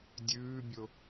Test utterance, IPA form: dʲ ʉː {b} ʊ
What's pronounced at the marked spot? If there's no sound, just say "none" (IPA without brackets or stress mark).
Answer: bʲ